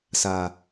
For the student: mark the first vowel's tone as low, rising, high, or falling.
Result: low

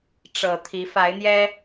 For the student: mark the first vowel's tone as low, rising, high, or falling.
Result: low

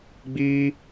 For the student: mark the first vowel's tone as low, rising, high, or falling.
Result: high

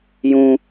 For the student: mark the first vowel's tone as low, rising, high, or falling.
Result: high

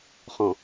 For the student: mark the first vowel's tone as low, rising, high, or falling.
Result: low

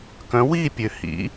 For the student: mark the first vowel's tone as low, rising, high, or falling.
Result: rising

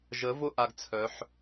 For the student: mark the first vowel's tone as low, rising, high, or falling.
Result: rising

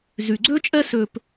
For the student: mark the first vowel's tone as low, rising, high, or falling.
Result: low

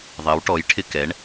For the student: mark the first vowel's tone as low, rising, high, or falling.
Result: rising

